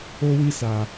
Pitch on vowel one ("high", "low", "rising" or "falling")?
high